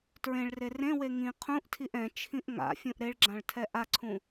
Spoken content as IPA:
t ɹ ẽ ɭ r e r ẽ w e ŋ ĩ qʰ ũ ʔ tʰ i ʔ ɛ̃ t͡ʃʰ ĩ ʔ ŋ a̰ fʲ ũ ʔ ɾ e ɭ ɡ͡ǁ ã ɭ tʰ ɛ ʔ a ǀʰ ũ

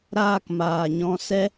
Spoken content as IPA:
ɾ aː˧ k m aː˨ ɲ ɔ̃˧ s ɛ˧

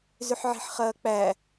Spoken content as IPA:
z ʏ ħ ʕ i̤ ħ χ ɐː k͡p æ

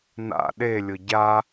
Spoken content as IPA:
n a̰ ɗ e lʲ ʊ ɟ a

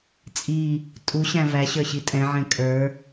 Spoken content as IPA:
t͡sʼ i | tʼ u ɕ æ̃ v æ ɕ ə˞ ɕ i tʼ ɛ̃ ʕ ɛ̃ kʼ ə˞

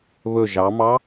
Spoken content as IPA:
β ɵ ʒ ɑ m ɑ

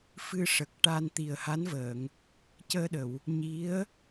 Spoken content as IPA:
f ɨ˧ ʂ ə˨˩ k̚ ʈ aː˧ n t̪ i˨˩ ə̯ h a˧˥ n v əː˨˩˨ ŋ | c əː˧ ɗ ə˨˩˨ w | ɲ i˧˥ ə̯

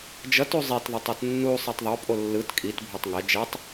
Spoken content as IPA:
d͡ʒ ʌ t u zˤ e t ðˤ ɛ tˤ ɛ t nː u sˤ ɛ tˤ ðˤ o pʼ o lː ɯ t kʼ i t bʱ o tˤ ŋ ɛ d͡ʒ ɛ tˤ

